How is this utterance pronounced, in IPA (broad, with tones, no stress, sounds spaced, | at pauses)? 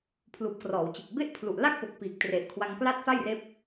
pʰ l uː˨˩ p̚ k r ɔː˩˦ w t͡ɕ e˨˩ k̚ b e˥˩ ʔ pʰ l u˨˩ ʔ l a˥˩ k̚ p o˨˩ k̚ p iː˨˩ k̚ t r e˨˩ ʔ kʰ w a˧ ŋ k l a˥˩ t̚ f a˥˩ j r eː˦˥ p̚